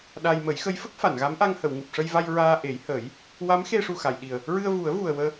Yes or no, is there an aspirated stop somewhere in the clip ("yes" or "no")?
no